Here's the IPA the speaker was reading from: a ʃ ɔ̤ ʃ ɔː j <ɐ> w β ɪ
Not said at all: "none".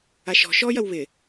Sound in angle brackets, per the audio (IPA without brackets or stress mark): ɐ